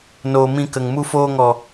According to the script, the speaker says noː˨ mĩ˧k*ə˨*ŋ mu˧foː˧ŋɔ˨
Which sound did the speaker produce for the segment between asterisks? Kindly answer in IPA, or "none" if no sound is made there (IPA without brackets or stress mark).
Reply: ə˨